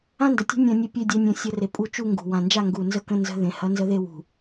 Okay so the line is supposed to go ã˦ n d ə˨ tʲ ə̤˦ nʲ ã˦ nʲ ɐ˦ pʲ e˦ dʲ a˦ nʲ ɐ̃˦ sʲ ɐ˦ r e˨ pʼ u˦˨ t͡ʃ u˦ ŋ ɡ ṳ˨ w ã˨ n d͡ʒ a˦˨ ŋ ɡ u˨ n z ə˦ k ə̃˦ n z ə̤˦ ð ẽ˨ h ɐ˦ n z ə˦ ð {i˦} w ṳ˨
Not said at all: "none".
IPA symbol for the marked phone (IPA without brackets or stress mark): e˦